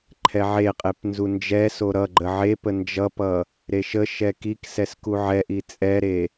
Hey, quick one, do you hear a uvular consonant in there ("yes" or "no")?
yes